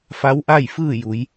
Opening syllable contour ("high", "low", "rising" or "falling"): rising